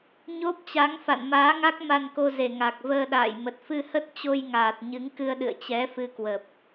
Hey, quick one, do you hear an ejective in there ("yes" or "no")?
no